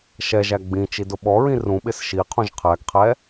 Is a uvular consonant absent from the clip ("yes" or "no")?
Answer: no